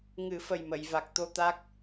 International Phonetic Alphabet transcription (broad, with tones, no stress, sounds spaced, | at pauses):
ŋ ɨ˨˩˦ f ə˨˩ j m ə˨˩˨ j v a˨˩ k̚ t̪ o˧ t̪ a˦˥ k̚